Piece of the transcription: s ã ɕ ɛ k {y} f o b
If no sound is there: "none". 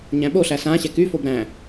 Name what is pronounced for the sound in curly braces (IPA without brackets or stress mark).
y